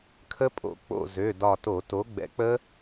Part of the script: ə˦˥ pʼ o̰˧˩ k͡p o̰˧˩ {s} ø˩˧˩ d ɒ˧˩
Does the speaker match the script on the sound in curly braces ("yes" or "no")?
no